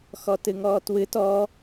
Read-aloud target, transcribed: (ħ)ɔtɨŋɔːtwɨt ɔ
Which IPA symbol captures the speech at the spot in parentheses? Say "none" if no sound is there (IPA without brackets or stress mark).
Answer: x